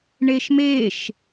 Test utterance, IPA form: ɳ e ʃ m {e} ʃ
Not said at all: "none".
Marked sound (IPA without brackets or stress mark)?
e